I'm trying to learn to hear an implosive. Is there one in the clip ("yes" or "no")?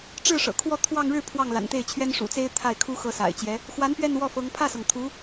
no